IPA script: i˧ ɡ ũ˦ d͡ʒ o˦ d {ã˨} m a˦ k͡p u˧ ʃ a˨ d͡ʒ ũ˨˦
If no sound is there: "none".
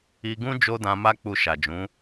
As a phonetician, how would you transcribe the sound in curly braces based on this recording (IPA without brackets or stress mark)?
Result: ã˧